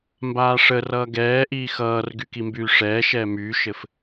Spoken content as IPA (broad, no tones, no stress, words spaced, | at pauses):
mbaːʂərʌː ɡɛːʔiː xʌːrɡy kimbyːʂɛːʃɛː myːʃɘf